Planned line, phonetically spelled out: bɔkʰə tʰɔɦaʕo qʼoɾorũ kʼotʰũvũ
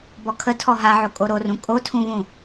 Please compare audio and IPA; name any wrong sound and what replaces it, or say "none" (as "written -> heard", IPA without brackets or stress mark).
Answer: qʼ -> kʼ